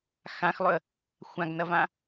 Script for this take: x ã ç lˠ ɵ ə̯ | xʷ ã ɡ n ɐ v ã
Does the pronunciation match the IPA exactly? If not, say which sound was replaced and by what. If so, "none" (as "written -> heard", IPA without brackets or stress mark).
ç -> x